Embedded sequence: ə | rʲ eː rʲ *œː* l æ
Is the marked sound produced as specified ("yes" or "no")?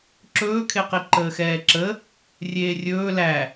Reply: no